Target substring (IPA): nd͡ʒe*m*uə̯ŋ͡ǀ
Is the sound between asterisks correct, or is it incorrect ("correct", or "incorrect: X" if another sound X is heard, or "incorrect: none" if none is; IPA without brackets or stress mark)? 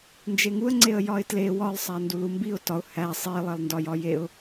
incorrect: ŋ